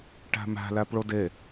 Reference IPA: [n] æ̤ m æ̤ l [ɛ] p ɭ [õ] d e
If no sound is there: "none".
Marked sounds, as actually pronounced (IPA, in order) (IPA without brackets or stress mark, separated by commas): ʈ, æ, o